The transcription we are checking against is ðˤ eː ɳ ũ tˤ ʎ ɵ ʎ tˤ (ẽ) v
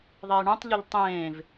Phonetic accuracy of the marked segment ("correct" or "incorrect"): incorrect